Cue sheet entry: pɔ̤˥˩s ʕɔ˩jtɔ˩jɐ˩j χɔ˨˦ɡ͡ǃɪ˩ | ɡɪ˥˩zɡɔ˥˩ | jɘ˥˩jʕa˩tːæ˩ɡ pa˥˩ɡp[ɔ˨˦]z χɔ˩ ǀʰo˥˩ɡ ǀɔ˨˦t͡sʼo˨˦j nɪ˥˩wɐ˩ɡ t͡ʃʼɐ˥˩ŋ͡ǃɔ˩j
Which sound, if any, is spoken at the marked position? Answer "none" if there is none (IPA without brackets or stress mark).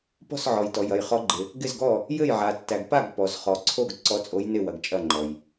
ɔ˩